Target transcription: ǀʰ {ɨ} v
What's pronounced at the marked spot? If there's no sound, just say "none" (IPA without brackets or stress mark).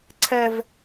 ɛ